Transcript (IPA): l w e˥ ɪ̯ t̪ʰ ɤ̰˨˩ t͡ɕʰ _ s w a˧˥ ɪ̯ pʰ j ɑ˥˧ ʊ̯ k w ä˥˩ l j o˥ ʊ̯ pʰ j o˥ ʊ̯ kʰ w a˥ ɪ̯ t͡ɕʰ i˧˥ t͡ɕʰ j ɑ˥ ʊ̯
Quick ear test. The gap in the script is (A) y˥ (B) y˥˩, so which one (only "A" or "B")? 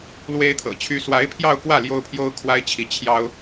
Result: A